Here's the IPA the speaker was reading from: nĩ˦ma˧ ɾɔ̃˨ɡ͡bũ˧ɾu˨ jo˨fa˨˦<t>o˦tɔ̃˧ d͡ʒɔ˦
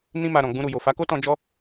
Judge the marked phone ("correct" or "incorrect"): incorrect